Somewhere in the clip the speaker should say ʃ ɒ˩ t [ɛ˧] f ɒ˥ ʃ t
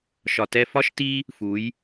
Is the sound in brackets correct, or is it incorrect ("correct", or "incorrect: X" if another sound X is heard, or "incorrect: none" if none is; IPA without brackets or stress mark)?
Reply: correct